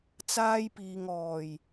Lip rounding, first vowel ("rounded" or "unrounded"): unrounded